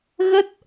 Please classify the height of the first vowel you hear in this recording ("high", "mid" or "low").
mid